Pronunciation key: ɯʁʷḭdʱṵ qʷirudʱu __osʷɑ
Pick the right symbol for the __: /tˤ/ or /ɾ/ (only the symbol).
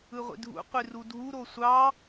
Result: ɾ